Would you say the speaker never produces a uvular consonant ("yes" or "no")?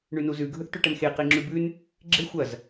no